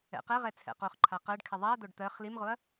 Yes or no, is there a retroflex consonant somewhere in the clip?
yes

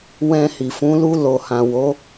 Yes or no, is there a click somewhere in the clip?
no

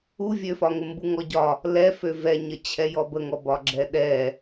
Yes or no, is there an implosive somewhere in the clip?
yes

